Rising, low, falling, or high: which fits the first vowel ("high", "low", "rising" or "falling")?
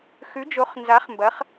rising